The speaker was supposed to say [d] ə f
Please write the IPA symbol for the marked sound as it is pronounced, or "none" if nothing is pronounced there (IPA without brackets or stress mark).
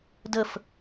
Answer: d